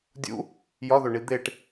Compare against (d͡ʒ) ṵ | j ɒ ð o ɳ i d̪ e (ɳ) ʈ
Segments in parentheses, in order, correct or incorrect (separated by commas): incorrect, incorrect